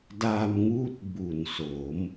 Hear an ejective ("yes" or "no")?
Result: no